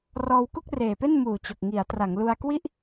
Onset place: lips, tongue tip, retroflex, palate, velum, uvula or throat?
tongue tip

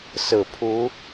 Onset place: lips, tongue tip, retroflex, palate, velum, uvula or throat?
tongue tip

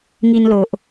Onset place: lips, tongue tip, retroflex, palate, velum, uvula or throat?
velum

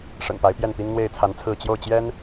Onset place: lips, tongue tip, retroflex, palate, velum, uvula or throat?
retroflex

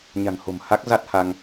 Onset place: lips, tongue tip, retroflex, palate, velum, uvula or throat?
palate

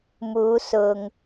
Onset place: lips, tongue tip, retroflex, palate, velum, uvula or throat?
lips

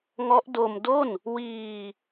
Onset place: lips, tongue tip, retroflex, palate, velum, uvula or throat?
velum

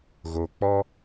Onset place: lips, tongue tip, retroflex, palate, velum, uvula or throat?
velum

